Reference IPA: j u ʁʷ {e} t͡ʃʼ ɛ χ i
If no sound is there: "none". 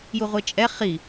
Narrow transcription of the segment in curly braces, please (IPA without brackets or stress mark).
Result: e